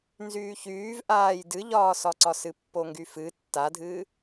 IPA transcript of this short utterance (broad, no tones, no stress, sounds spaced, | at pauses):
n z yː ç yː v ʔ aː j d ɨ ʎ ɒː s ɒ ǀ ɒ s ɨ pː o ŋ ɡ y f ɨ tː a dʱ ɨː